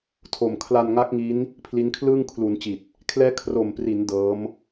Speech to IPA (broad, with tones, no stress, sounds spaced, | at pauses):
tʰ o˨˩ m kʰ l a˧ n ŋ a˦˥ k̚ ŋ i˦˥ n | pʰ l i˦˥ n kʰ l ɯː˥˩ ŋ kʰ l u˩˦ n t͡ɕ i˨˩ t̚ | kʰ l ɛː˦˥ kʰ r o˨˩ m p r i˩˦ n d ɤː˦˥ m